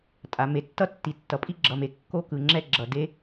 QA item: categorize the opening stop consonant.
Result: ejective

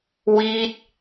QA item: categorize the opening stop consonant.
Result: plain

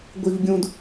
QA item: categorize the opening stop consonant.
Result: plain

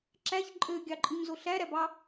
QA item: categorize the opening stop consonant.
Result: click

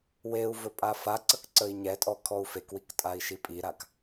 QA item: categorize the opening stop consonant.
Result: ejective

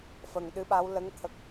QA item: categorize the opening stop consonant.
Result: implosive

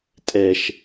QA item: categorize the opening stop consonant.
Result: ejective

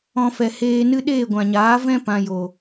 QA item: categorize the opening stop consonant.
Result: implosive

